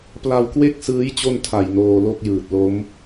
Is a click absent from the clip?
yes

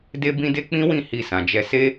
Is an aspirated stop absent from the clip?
yes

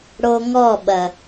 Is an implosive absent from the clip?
no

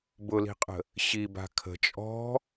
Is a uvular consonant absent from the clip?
no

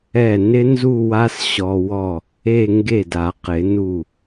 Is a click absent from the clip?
yes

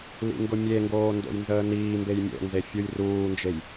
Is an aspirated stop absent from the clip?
yes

